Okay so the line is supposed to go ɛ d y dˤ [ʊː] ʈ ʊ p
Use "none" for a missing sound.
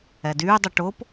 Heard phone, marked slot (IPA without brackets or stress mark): ʊ